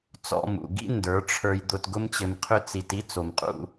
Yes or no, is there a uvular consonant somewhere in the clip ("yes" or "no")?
yes